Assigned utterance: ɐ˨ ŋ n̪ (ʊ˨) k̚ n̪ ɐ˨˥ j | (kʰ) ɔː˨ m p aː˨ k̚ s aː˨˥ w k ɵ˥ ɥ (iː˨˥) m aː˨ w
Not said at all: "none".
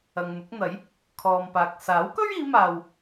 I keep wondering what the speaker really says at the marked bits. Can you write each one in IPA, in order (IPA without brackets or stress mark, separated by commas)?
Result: ʊ˨˥, kʰ, iː˨˧